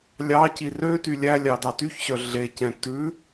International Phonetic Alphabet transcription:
lʲɑci rø tylʲælʲɑ dɑtyçɕœ ɮecɛ̃ tʉ

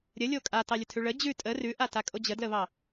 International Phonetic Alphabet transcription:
ɾʲəlʲo kʼatɑlʲətʰʉ ɭə d͡ʑʉ tʼə rʉʔatakʼo d͡ʑədləβɑ

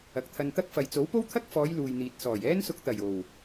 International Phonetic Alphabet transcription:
ɐ˨k̚t̪ʰɐ˧nt̪ɐ˥k̚fɐ˨j t͡so˨˥wpo˥wt̪ʰɐ˥k̚fɔː˨˧j luː˨jn̪iː˨t̚sɔː˨˩j ɛː˥nsʊ˧k̚t̪ɐ˨˩j o˨˩w

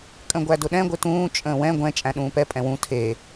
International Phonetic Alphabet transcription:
kʼə̃ɡʷædʊɗɛ̃ ɡʷɪtũː t͡ʃʼə̃ːwɛ̃ ɡʷɛ̃ t͡ʃʼæ̃ɗũːpɛ pʼɛ̃wũ tʰe

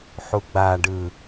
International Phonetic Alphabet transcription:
ħuɡ͡baɖɯ

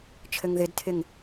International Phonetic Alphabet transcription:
t͡ʃʰɘŋðɪdtʰɪŋ

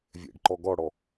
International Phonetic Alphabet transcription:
vʲɛ̰ɖǃɔ ɡɔɽɔ

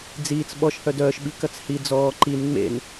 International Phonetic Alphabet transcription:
d͡ziːt͡s ɓɔʃ hœdœːʃɓi kɐt͡shi d͡zɔː ǃin ŋ͡mḛn

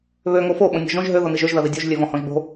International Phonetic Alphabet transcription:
βø ŋofo ɓõnʲɔ̤ʒõʒ ɦø ðoniʒøʒ ðɐðidʲoʒ lʲøvɔ̃hɔ̃ʒbo̤

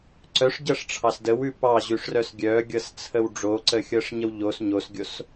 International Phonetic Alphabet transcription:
ǀœʂɟɤʂʈ͡ʂʰɑs dəwʉ pɑʑʉʂrœs ɡʲœɡʲɤst͡sʰəw ɖ͡ʐoǀəxʲɤʂɲəw ʎos ɲosɡʲos

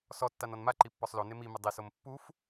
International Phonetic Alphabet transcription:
sɔtːan ɔnmaǃi pːɔsˤlone mimɪ dˤisom pːuf

